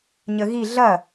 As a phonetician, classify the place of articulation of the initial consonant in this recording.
palatal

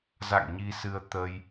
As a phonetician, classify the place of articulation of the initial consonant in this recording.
alveolar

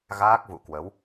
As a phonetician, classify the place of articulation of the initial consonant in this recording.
velar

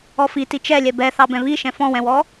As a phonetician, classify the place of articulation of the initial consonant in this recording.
labial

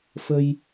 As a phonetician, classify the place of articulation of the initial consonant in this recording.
labial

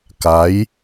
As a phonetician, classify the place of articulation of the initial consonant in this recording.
velar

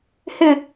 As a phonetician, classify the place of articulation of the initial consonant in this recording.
glottal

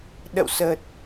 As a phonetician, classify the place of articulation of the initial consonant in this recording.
alveolar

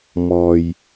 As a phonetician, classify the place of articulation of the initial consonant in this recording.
labial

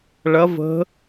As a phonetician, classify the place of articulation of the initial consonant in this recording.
retroflex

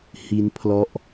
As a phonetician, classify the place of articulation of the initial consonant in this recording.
glottal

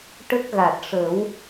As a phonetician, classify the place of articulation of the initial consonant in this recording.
retroflex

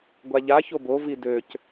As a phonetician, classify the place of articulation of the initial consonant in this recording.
velar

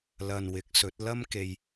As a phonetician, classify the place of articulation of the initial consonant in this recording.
alveolar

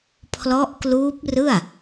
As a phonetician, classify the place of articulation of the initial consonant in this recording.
labial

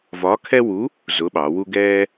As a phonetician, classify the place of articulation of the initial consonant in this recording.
labial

